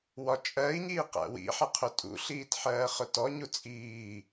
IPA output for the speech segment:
w ɒ t͡ʃʼ ɜ i̯ ɲ iː q æ̰ w ḭ ħ ʌ qʰ ʊ tʼ ṵ ɬ iː t ħ ɜː χ ʊ t ɔ ɲ u t͡sʼ iː

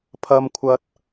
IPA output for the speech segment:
pʰ ɐ˥ m kʷʰ ɐ˥ t̚

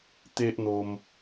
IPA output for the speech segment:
t̪ e˦ ʔ n̪ o˧ m

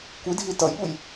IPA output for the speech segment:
kʷ i dʱ i t ʌ j ɓ u j

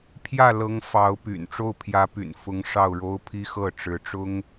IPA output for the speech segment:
pʰ j ä˥˩ l ɤ˧˥ ŋ f ɑ˧˥ ʊ̯ p y̰˨˩ n ʈ͡ʂ o˥˩ ʊ̯ pʰ j ä˧˥ p y̰˨˩ n f ʊ˧˥ ŋ ʂ ɑ˥˩ ʊ̯ ɻ o˥ ʊ̯ pʰ i˥ x ɤ˥˩ ʈ͡ʂ ɻ̩˧˥ ʈ͡ʂ ʊ˥ ŋ

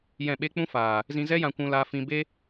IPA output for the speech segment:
j ɛ̃˦˨ ɓ e˦ k͡p ũ˦ f aː˨ | z ĩ˧ z ɛ˦ j ã˧ kʷ ũ˧ l aː˧ f ĩ˧ b e˦

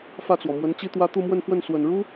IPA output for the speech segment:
f ä˥˩ t͡s w ɔ˩ m w ə˧˥ n t͡ɕ i˥ t̪ w ä˥ t̪ u˥˧ m w ə˥˧ n f w ə˥˩ n s w ə˨˩ n ɻ u˥

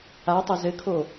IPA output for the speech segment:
a tˤ ɐ z ɘ kʰ o

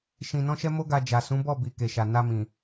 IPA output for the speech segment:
ʃ ĩ˧ n ɔ̃˦ ʃ ɛ˦ m o˦ ɡ a˧ d͡ʒ a˨ s ũ˨˦ b ɔ˦˨ b i˨ k e˨ ʃ a˨ n a˧ m ĩ˨

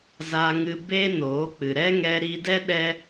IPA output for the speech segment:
z a˦ ŋ ɨ˦ b e˦ n oː˨˦ k͡p ɨ˨ ɾ ɛ˦ ŋ ɛ˧ ɾ iː˧ d ɛ˦ ɗ ɛ˦

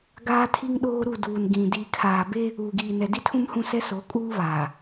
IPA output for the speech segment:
ɡ aː˦ tʰ i˦ ŋ ɗ oː˦ ɾ u˦˨ d uː˨ n ɡ ĩ˨ d iː˨ kʰ aː˨ b e˦ | uː˨ ɡ iː˨ n ɛ˨ d i˦ tʰ ũ˦ m h ũ˦˨ s ɛ˦ s o˨˦ kʼ uː˦ β aː˨

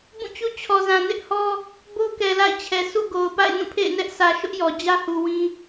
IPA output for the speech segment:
b ũ˦˨ t͡ɕ u˦ t͡ɕʰ ɔ˨ z ã˨ n ɪ˦ ʔ h ɔ˦ | b o˦ k ɛ˨ l a̰˦˨ ɪ̯ t͡ɕʰ ɛ˨ s ṵ˦˨ ɡ o˨ ʊ̯ p a̰˦˨ ɪ̯ n ũ˦˨ pʰ ḛ˦˨ ɪ̯ n ɛ˦ ʔ s ä˨ ʃ ʊ˦ ʔ j ɔ˨ d͡ʑ ä˦ h u˨ w ĩ˦

